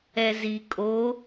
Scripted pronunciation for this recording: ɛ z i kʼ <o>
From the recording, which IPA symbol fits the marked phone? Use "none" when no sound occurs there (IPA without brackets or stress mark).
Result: o